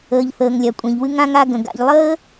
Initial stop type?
ejective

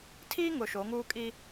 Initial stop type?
aspirated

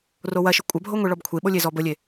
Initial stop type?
ejective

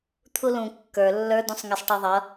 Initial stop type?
aspirated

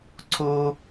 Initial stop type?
click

